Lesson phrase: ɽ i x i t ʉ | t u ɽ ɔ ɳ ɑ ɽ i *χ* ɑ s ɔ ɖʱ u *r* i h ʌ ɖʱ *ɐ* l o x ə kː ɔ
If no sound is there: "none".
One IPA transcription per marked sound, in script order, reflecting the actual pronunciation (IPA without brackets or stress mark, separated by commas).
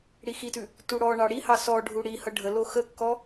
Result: h, ɽ, ə